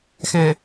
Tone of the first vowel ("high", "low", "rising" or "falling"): low